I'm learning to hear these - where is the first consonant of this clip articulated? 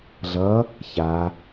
tongue tip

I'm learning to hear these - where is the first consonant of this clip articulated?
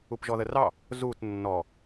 lips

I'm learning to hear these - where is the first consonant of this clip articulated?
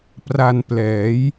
lips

